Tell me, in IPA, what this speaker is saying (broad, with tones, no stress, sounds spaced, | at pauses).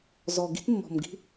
z ɔ˨ ɡ i̤˦ t mː ɔ̤˨ m ɡ i̤˦